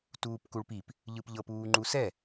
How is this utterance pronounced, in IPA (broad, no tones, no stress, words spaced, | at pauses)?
tuːpkuɭpip | ʎɯpʎɤp uːŋ͡ǃusɛ